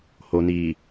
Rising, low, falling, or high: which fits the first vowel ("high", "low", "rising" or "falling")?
low